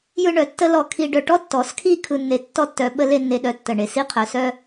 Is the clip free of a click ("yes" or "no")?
yes